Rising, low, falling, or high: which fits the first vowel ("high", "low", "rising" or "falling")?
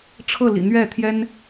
falling